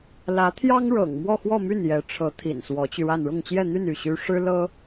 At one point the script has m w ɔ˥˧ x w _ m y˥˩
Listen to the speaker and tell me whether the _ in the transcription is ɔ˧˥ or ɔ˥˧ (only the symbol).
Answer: ɔ˥˧